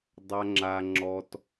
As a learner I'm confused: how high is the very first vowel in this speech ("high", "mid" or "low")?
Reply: low